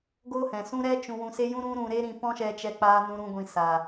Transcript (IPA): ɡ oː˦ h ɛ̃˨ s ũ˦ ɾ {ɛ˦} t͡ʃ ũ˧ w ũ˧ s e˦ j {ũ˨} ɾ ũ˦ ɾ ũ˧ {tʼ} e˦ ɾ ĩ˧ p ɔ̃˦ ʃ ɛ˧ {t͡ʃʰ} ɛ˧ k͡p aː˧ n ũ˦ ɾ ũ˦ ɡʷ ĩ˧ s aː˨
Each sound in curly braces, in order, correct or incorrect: correct, incorrect: ũ˦, incorrect: ɾ, incorrect: t͡ʃ

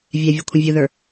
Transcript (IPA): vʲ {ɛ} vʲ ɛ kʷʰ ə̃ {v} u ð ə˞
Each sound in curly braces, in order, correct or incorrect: correct, incorrect: vʲ

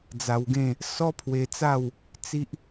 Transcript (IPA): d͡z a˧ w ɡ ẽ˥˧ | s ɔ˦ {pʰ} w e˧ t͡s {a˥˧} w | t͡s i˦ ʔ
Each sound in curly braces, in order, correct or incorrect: correct, correct

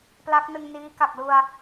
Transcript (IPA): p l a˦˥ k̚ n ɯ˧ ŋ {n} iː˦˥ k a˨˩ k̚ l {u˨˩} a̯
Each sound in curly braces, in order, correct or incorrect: correct, incorrect: u˧

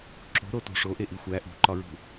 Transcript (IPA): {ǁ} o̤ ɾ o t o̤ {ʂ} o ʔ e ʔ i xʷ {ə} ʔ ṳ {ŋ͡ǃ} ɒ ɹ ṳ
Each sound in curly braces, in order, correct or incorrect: correct, correct, incorrect: æ, incorrect: ǃ

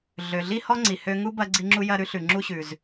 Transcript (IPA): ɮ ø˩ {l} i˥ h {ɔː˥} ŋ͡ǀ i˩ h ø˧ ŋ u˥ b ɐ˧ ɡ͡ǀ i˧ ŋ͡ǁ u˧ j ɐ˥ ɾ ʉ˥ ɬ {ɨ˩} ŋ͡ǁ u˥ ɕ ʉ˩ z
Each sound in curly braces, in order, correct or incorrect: incorrect: ɮ, incorrect: ɔ˥, incorrect: ʉ˩

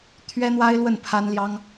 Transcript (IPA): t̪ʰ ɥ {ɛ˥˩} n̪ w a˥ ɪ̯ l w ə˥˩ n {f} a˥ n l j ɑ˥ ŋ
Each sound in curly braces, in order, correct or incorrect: incorrect: ɛ˥, incorrect: pʰ

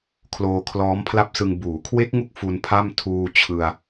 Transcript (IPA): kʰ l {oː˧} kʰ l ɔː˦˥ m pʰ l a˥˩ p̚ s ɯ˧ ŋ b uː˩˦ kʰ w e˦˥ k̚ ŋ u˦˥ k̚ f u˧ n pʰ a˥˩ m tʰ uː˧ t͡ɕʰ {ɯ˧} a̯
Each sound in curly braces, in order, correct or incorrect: correct, correct

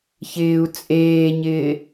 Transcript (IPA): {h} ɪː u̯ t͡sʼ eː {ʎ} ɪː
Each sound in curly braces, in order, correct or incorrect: incorrect: ç, incorrect: ɲ

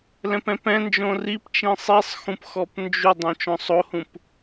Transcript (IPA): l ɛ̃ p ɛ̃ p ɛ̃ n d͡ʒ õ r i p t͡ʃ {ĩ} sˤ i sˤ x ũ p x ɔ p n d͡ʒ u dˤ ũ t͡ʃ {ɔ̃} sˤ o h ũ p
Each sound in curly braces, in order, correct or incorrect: correct, correct

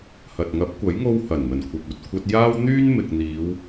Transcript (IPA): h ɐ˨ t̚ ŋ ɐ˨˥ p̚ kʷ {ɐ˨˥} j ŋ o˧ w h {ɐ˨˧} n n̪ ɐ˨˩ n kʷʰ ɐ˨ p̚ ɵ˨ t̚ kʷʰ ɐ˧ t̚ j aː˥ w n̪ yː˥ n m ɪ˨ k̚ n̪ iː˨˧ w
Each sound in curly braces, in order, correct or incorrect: correct, incorrect: ɐ˨˩

